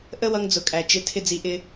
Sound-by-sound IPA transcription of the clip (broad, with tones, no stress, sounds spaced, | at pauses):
ʔ ə˦ w ʌ˧ ŋ d͡z ʊ˨ kʼ æ˨ t͡ʃ ɪ˧ tʰ ɪ˦ d͡z i˧ ʔ ɪ˦